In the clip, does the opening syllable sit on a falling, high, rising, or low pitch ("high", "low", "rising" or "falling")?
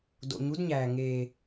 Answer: low